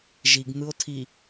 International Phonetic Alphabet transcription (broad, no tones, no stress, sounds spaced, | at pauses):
ʒ i ɡ n̪ ɯ o̯ tʰ i